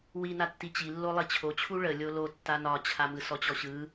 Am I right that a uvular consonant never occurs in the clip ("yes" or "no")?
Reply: yes